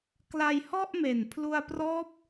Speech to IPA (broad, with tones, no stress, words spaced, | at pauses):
kla˧jhɔ˥˩ʔme˨˩n pʰlu˧a̯prɔː˦˥p̚